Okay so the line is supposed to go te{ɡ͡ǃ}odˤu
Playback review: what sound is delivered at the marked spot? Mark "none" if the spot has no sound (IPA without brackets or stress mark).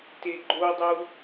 ɡ͡ǃ